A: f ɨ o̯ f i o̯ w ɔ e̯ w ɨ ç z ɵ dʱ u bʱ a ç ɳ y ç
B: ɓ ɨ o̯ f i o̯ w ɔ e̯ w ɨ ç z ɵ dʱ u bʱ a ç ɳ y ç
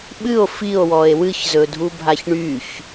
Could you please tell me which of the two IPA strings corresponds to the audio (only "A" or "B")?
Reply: B